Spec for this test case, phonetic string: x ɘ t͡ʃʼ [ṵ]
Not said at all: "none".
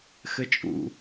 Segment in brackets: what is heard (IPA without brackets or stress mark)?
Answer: ṵ